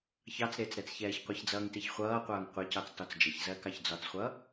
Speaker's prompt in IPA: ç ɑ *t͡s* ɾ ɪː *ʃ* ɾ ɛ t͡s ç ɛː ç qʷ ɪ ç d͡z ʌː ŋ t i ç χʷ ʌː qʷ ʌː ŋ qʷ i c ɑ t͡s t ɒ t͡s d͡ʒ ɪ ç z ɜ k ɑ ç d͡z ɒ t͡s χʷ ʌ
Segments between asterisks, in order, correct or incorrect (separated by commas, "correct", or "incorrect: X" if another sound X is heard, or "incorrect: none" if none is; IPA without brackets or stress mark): correct, incorrect: t͡s